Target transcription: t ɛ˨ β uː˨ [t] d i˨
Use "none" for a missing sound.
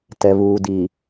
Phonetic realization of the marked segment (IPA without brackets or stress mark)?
none